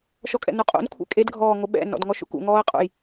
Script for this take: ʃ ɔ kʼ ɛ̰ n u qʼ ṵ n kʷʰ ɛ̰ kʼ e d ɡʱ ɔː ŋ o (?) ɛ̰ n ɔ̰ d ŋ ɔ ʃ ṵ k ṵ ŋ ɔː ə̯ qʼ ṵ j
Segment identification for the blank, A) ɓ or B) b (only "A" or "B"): A